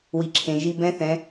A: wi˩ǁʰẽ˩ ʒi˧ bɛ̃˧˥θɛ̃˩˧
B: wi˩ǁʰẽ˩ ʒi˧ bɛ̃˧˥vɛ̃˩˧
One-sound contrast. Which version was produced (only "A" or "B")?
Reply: A